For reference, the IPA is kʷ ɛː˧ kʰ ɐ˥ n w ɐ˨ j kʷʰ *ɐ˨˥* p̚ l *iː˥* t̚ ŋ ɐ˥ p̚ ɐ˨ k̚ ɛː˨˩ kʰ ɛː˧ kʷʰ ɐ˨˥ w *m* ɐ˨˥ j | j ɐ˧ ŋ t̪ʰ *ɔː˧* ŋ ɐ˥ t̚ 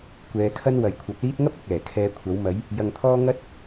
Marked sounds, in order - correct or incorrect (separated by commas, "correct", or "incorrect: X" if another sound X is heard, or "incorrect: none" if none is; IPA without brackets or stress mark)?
correct, correct, correct, incorrect: ɔː˥